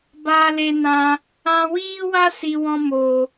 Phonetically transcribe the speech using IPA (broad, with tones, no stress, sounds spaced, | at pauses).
b aː˧ l e˧ n ã˧ | ã˧ w iː˦ w a˦ s i˨ w ɔ̃˧ m o˨